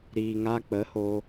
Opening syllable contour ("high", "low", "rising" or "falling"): low